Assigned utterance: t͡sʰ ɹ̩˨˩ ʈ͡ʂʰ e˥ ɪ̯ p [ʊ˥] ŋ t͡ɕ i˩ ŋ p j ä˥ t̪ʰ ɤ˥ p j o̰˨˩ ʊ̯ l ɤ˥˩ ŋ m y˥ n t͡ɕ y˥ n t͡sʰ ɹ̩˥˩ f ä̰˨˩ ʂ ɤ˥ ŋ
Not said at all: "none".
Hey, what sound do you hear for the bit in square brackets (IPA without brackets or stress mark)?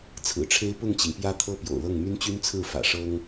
ʊ˥˩